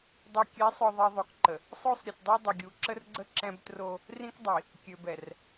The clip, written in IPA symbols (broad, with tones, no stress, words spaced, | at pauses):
dˤɛ˨ kʲɛ˨˦sˤœ˨ ðˤi˨ðˤo˨kǃə˨ | sˤo˦sˤ ɾʲə˨tdˤɛ˦dˤə˨ɡʲu˨ ǁə˦rɡ͡ǀə˦ ǁɛ̃˦btro˦ | rĩ˦kdˤi˨ | kʲø˨bɛ˨r